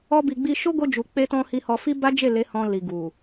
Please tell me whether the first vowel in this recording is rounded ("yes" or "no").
yes